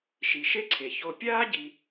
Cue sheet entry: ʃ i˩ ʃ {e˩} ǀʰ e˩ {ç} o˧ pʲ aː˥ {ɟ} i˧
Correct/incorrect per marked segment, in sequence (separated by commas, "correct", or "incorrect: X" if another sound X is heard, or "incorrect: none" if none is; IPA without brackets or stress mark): incorrect: e˥, correct, correct